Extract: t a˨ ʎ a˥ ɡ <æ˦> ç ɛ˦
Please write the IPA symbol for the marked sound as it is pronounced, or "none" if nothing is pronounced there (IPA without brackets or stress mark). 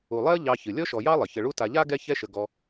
ɛ˦